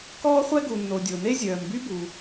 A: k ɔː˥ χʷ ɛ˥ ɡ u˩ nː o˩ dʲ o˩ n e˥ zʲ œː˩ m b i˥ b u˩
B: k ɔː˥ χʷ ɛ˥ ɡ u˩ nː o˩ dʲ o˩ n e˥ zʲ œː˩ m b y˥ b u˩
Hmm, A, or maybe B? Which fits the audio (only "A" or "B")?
B